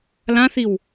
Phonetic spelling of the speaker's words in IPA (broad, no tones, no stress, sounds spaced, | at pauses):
l ã θ i w